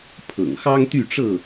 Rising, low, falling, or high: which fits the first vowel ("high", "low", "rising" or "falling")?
low